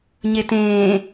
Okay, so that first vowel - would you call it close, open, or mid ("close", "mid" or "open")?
mid